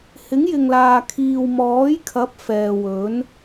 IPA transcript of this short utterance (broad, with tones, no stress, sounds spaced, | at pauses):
h ɪ˨˥ ŋ j ɪ˨ ŋ l aː˨ kʰ iː˨ w m ɔː˨˥ j kʰ ɐ˨˥ p̚ f ɛː˨ w ɵ˨˥ n